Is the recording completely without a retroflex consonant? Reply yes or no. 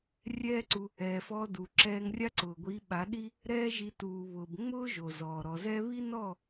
yes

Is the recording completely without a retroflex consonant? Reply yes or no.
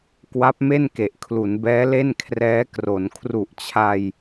yes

